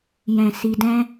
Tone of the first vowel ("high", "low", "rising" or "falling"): low